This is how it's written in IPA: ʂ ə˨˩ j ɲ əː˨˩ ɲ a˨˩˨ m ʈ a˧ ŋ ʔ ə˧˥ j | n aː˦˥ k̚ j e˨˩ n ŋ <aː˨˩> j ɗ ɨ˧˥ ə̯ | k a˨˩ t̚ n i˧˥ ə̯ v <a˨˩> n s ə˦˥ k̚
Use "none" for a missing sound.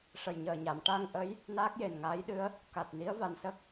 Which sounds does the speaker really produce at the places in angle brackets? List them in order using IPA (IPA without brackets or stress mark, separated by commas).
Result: aː˧˥, a˨˩